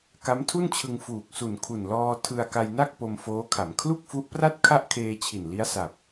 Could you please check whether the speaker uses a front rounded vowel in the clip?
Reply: no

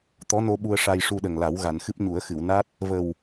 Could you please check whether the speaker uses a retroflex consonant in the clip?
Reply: yes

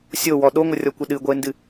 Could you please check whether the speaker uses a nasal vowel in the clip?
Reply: no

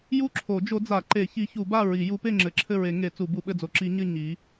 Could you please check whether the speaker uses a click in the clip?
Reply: yes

